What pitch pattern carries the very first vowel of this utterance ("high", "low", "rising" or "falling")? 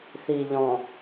low